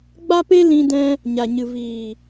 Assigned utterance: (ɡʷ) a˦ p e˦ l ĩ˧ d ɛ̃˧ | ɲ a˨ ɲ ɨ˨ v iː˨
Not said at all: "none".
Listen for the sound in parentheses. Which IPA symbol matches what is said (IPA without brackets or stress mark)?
ɡ͡b